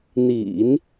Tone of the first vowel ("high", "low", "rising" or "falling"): low